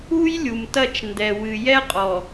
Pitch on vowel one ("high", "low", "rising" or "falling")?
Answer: high